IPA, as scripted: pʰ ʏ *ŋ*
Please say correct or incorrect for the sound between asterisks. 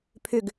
incorrect